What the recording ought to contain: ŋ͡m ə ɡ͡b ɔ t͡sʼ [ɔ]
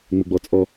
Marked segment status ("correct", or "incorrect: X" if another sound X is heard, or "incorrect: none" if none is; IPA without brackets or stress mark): correct